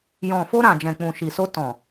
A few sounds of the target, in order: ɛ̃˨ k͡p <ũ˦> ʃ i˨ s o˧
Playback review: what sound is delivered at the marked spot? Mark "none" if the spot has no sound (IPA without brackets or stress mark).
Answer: ũ˨